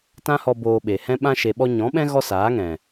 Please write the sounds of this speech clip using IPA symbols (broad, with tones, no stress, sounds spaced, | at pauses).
t ã˦ h ɔ˧ b oː˧ ɓ e˨ h ɛ̃˦ ɓ ã˦ ʃ e˨ ɓ ɔ˧ ɲ ɔ̃˨˦ ɓ ɛ̃˦ ɣ ɔ˦ s aː˨˦ ŋ ɛ̃˨